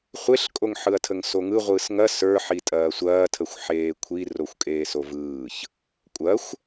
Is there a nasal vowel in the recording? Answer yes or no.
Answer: no